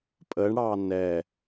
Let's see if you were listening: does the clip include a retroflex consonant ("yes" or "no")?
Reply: yes